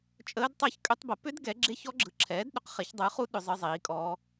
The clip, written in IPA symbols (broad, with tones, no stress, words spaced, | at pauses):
t͡ʃʼəː˦˥dtˤe˦˥ç kʼʏ˦˥tˤ bə˨˥ pʏ˦˥d ɡɛ˨˥ɡ͡ǁe˦˥ç ɔ˦˥ɡ͡ǁɯ˨˥ǁʰɛː˨˥d ɗʏ˨˥qχe˨˥çdˤɯː˨˥χu˦˥ ɗʏ˦˥zˤɯ˦˥ zˤiː˨˥kʼɔː˦˥